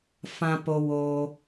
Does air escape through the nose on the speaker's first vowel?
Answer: yes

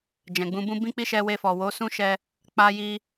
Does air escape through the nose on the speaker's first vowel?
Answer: yes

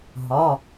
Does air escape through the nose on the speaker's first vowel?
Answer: no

